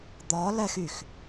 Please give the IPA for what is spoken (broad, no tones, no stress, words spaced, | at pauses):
d̪ɒ lɛxyx